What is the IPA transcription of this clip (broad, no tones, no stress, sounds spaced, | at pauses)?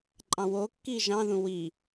ǃʼ ɑ̃ w o kː iː ʒ ɑ̃ ð ũ w i